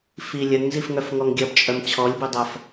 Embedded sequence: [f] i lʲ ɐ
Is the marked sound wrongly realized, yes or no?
no